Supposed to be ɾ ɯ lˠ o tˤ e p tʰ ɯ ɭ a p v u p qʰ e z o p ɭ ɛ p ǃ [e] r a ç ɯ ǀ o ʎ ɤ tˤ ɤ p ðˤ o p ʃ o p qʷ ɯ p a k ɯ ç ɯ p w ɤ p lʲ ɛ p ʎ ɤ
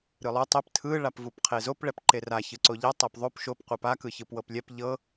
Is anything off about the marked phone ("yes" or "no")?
no